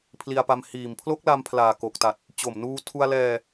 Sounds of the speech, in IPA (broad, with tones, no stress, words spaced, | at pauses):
pʰli˧a̯pa˧m hiː˨˩mpʰlo˦˥k̚la˧mpʰlaː˨˩ ko˨˩k̚ta˨˩t̚ | t͡ɕo˨˩mnuː˧ tʰu˧a̯lɛː˧